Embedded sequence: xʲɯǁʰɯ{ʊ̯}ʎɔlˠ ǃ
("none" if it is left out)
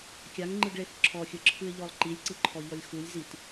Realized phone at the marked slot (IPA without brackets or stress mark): ɪ̯